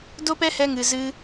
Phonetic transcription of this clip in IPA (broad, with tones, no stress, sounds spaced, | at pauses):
d o˦ p ɛ˦ h ɛ˧ ŋ ɨ˨ z ɨ˧